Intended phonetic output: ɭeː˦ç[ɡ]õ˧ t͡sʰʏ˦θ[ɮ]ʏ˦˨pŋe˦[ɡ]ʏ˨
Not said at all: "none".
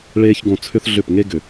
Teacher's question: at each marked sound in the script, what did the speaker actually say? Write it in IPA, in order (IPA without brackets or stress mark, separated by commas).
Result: ɡ, ɮ, ɡ